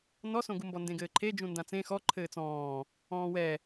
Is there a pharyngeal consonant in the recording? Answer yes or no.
no